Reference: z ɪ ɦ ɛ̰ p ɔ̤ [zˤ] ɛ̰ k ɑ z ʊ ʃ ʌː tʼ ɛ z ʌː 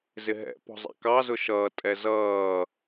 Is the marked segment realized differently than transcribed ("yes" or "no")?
no